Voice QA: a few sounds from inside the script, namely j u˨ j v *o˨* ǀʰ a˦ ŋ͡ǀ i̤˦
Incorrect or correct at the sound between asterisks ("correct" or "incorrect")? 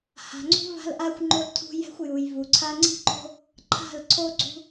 incorrect